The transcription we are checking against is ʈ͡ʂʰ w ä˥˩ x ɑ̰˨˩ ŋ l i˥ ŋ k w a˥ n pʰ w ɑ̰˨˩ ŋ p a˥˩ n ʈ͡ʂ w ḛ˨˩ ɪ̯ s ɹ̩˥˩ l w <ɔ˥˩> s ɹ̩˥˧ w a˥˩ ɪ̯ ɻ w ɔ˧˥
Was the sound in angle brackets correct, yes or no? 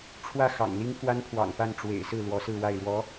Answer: no